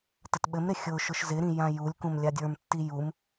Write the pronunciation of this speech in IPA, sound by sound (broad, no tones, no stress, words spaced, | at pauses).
tətɓɘmɾɪ xʲʊʃʊʃ zɪɾĩ jãjulʲkũm lʲadʲə˞mtːi jum